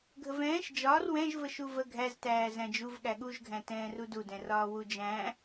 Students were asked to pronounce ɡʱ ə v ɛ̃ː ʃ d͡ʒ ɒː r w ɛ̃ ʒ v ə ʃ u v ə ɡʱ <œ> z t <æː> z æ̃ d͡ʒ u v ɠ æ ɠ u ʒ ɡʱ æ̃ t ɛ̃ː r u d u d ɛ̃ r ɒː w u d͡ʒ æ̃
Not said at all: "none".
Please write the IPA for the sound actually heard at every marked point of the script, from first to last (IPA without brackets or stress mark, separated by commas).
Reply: æ, æː